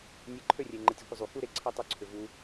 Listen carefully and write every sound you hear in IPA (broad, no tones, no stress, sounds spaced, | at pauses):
nʲ e ǃʰ ø rʲ e ŋ͡ǃ ɘ tʲ u kʷ ə zˤ u k u ɾ e ǀʰ ɛ tˤ ø ǀʰ ʏ v u